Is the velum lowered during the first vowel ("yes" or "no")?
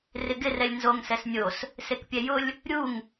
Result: no